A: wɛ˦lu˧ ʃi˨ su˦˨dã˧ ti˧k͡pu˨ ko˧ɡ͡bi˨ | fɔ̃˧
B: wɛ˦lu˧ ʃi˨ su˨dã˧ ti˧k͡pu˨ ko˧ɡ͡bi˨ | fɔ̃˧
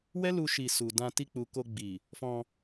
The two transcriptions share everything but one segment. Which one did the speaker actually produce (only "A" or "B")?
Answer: B